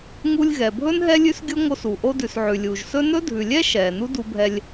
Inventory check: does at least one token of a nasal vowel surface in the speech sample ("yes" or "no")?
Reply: no